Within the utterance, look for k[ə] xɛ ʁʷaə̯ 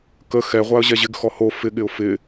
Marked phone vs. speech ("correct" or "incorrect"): correct